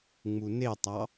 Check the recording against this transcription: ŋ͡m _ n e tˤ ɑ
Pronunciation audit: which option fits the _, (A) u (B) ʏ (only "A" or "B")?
A